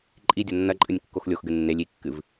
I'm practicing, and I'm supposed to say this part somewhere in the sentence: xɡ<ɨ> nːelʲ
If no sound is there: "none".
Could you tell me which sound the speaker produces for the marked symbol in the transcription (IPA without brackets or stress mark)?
ɨ